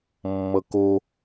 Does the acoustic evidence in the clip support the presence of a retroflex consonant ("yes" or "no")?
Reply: no